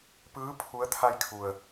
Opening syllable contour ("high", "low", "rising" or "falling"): rising